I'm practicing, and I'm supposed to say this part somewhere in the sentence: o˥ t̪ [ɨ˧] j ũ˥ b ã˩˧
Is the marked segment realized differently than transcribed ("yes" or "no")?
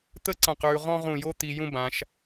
yes